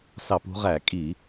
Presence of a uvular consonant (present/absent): present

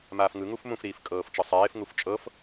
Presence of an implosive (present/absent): absent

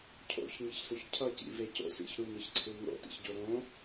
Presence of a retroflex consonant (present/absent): absent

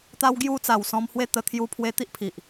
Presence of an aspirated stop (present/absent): present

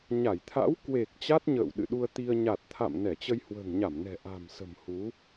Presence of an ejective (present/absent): absent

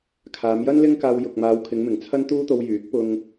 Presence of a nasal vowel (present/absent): absent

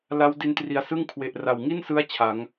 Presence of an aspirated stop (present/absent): present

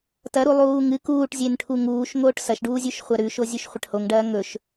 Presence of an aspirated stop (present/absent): present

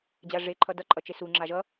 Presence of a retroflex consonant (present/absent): present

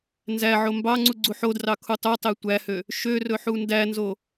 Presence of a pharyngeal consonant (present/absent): present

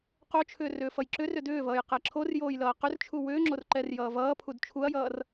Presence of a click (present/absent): present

